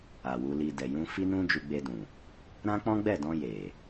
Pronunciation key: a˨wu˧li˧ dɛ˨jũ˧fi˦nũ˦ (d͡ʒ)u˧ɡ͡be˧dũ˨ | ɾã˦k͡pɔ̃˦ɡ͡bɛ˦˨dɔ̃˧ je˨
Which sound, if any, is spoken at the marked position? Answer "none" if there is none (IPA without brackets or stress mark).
d͡ʒ